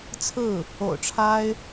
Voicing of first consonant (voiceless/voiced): voiceless